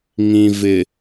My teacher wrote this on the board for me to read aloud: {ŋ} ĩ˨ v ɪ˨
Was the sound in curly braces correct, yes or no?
yes